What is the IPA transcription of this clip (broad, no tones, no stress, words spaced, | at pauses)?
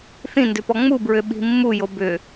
θĩndʏpɔ ŋ͡mubɹʏɓi̤ mːujo bʏ